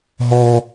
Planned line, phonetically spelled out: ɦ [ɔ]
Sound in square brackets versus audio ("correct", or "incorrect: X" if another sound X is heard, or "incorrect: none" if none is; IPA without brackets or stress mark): correct